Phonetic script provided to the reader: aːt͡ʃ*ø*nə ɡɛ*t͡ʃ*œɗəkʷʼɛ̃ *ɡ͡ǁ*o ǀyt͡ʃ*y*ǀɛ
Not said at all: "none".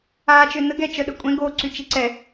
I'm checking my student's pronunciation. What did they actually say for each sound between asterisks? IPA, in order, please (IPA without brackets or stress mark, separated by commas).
ø, t͡ʃ, ɡ, i